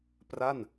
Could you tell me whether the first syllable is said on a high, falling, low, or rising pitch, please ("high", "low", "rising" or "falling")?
falling